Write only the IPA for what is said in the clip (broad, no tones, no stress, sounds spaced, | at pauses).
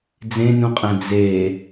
d͡z ẽ n ũ qʼ æ̃ d͡z e